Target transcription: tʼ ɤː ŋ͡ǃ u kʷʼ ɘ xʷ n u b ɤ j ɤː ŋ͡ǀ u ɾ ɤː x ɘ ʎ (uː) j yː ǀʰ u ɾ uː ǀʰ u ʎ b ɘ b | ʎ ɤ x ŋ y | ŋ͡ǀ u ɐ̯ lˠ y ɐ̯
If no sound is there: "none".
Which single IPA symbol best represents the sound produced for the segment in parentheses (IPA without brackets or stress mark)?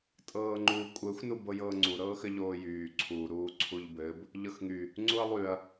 oː